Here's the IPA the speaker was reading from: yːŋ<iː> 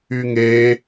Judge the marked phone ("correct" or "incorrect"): incorrect